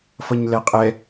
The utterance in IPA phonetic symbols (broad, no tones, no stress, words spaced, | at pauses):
fʌɲlɛqʼɛ